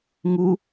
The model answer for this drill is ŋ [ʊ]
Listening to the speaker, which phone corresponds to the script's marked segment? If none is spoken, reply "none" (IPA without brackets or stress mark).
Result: u